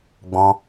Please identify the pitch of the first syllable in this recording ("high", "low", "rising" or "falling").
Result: high